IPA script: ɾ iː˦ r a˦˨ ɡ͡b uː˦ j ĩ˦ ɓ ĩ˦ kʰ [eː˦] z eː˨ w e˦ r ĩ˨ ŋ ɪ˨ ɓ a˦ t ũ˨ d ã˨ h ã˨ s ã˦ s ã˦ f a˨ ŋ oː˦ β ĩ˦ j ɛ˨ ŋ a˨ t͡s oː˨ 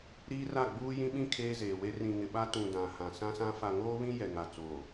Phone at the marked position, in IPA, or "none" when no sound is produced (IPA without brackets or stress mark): eː˦